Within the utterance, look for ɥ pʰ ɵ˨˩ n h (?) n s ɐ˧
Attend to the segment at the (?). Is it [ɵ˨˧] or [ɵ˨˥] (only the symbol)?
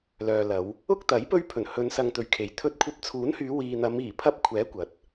ɵ˨˧